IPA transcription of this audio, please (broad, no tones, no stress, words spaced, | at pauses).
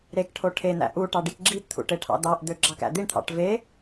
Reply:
ɾekʈʰo ʈʰen̪æ̰ ʔu ʈɑɖikɡ͡ǁipt̪ʰṵ ʈeʈʰɑ̰d̪ɑʔd̪ø ɡ͡ǁɑkæ̰d̪iɳt̪ʰɑ̰ʈ ve